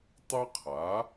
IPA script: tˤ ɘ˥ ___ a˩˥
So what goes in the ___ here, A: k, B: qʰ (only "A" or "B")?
B